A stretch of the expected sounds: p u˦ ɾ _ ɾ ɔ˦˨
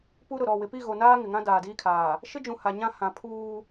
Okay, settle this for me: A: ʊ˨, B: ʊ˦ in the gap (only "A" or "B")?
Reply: A